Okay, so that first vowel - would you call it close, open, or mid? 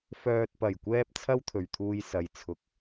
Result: mid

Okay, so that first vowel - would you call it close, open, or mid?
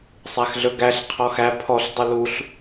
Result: open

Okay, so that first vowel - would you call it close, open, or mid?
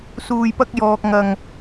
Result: close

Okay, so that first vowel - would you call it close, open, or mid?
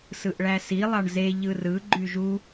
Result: close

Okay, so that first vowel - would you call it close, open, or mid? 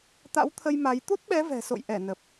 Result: open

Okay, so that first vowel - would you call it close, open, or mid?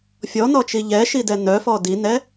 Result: mid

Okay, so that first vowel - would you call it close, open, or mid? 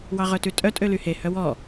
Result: open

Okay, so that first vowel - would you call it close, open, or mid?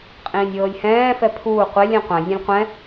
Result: close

